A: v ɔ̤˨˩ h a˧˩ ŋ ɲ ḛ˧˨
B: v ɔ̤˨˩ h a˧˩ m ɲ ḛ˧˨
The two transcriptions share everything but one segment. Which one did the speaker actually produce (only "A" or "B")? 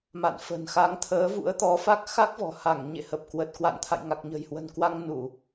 A